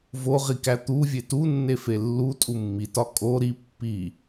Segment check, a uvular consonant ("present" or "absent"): present